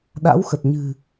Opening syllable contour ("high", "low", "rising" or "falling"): rising